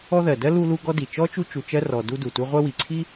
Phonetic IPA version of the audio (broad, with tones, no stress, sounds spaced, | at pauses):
ɔ˦ ð ɜ˩ d ɜ˥ l u˦ l u˦ ɡ ɔ˦ d i˩ t͡ʃ ɔ˥ t͡ʃ u˦ t͡ʃ u˨ t͡ʃ ɜ˦ r ɔ˨ d u˦ d u˩ t u˦ ʁʷ ɜ˦ w i˩ ǀʰ i˥